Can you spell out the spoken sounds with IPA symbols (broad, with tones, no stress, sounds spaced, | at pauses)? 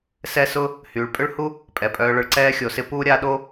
s ɛ˦ s ʊ˦ | h yː˩ ɭ pʼ ʏ˥ ɭ h u˥ | pʼ ɛ˩ pʼ œː˨ ɭ ʊ˨ ɭ ǀ ɛː˦ xʲ o˩ s ɪ˥ p uː˥ ɾʲ a˦ ɗ o˥